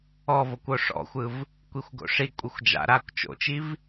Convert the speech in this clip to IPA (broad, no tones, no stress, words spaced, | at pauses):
ɔvokʷ oʂɔ̰xʷɯv | kʷixʷɡo̰ʂi kʷʼɯxʷd͡ʒa̰ɾaːkʷ t͡ʃo̰t͡ʃiv